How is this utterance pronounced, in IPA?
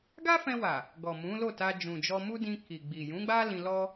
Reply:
ɡ a˦ f ɛ̃˧ w a˨ | ɡ ɔ˨ m ũ˨˦ l o˦˨ t a˧ d͡ʒ ũ˨ d͡ʒ ɔ˧ m u˦ d ĩ˧ k i˨ ɡ͡b i˨ j ũ˨˦ ɡ͡b a˦ l ĩ˧ l ɔ˦

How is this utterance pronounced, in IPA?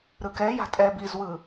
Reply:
ɾ ɯ k ɛ j a̤ tʼ ɛ b i z w ɯ

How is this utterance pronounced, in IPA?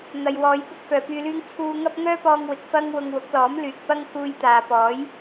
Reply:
n̪ ɐ˨ j w ɔː˨˧ j p ʊ˥ k̚ f œː˨ p yː˧ l yː˥ ŋ t͡sʰ uː˧ ŋ ɐ˥ p̚ ŋ œː˥ p ɔː˧ ŋ w ɪ˨ k̚ f ɐ˥ ŋ w ʊ˧ ŋ w ʊ˨˥ k̚ l ɔː˨˥ m l yː˨ k̚ p ɐ˥ ŋ k uː˧ j t̪ aː˨ p ɔː˨˥ j

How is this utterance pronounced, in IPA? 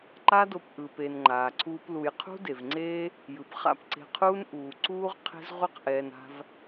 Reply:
ǃ a˦ d o˧ p ʔ ɯː˨ p e˨ n ŋ͡ǃ aː˨ ǀʰ uː˦ p l u˧ j qʰ ṳ˦ d e˨ v ŋ͡ǀ eː˦ | j ɯ˨ p χ a̰˦˨ p ǀ e̤˧ qʰ uː˦ n ʔ uː˧ ǀ uː˦ ʁ qʰ e̤˦ z ʁʷ ɛ˦ q ʔ ɛː˧ n a̤˦ v

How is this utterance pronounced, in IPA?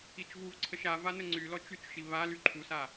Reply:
i t͡ʃ v u v ǀʰ ə ʃ a v a n ə ŋ͡ǀ y l ɔ t͡ʃ y t͡ʃ ʃ i β a l y ǃʰ u s a

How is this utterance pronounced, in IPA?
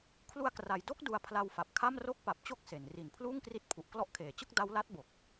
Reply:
kʰ l u˧ a̯ k r a˩˦ j d o˥˩ k̚ d u˧ a̯ pʰ l a˧ w f a˨˩ p̚ kʰ a˥˩ m r o˥˩ k̚ p a˨˩ p̚ t͡ɕ o˥˩ k̚ s e˩˦ n r i˨˩ n pʰ l uː˥˩ ŋ k r i˦˥ t̚ pʰ u˨˩ ʔ k l ɔ˦˥ ʔ kʰ eː˩˦ t͡ɕ ɯ˥˩ k̚ d a˦˥ w l a˦˥ t̚ b o˨˩ k̚

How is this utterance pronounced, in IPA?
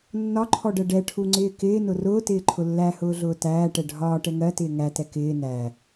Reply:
nː ɒ ǃʰ ɔ ɖ ɜ ɖ ɛ ʈʰ u ŋ͡ǀ ɪː k ɪː n ʊ r ʊː t ɪː ǃʰ ʊ lː æ h ʊː ɮ ʊː t æː ʈ ɛ ɖʱ ɒː ʈ ɛ ŋ ɜ t ɪː ŋ æ t ɛ k ɪː n æ

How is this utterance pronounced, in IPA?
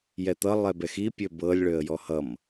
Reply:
j ɛ t̪ ʌ lˠ ɛ b ɛ x i pʲ ø b ɤ lʲ ɭ ø ə̯ j ɔ h ʌ m

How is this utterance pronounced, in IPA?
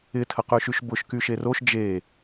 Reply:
ɪ tʰ ə q y ʃ y ʃ b ʊ ʃ k y ʃ e r o ʃ d͡ʒ e

